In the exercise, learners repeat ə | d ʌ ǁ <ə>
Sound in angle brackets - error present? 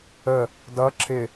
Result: yes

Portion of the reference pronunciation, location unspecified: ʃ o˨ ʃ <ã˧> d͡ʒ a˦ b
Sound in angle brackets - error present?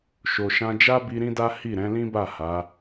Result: no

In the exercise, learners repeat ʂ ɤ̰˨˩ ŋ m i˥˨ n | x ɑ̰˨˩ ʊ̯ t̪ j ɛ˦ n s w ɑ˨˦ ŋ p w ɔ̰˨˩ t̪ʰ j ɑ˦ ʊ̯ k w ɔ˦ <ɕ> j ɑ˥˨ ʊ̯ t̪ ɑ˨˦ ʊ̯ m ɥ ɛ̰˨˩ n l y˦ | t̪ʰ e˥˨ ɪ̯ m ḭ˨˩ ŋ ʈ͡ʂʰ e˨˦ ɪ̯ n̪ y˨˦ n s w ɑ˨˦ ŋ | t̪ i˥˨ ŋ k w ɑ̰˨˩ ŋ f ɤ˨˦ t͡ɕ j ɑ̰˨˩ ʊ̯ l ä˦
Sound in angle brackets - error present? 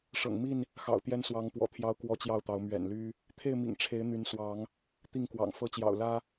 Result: yes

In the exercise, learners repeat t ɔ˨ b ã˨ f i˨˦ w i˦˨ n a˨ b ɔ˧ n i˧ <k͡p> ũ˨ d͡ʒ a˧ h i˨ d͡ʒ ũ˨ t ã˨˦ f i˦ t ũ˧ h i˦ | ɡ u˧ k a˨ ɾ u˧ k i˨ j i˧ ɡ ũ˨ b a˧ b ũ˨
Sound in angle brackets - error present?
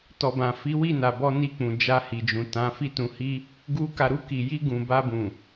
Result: no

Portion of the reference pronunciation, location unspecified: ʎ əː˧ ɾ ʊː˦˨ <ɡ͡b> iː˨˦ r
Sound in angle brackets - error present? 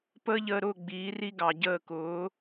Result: no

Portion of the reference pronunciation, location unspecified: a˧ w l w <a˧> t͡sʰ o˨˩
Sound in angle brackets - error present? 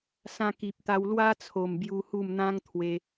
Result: yes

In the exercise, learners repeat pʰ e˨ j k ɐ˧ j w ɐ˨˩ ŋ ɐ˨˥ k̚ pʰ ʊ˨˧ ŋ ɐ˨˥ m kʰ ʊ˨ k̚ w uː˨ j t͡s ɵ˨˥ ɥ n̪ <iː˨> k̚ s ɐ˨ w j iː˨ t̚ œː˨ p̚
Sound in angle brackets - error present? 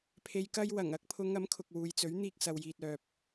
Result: yes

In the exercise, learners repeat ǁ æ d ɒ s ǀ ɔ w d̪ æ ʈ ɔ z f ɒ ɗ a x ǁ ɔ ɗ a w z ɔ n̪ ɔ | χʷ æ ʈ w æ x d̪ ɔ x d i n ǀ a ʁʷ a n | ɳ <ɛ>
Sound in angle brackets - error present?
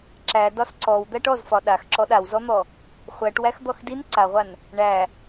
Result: yes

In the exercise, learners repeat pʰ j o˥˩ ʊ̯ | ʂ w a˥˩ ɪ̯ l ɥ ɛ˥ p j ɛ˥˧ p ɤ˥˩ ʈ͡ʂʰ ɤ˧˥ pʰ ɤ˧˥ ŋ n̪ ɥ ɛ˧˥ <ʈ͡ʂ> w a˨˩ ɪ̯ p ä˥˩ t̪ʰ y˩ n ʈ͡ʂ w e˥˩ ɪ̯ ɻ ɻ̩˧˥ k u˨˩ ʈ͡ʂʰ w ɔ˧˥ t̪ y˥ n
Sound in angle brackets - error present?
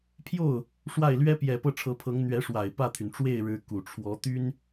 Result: yes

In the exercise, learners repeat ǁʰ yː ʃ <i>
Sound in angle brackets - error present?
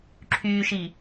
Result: no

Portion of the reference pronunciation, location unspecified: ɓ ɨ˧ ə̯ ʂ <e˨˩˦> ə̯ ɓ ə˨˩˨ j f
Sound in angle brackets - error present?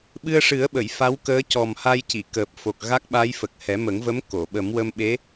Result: yes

